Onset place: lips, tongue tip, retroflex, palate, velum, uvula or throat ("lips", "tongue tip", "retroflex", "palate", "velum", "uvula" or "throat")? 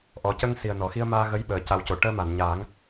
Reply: throat